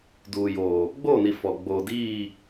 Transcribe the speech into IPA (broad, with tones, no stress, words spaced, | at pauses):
duː˨joː˨ | ɡ͡boː˦˨ni˨ fɔ˨ ɡ͡boː˨diː˦˨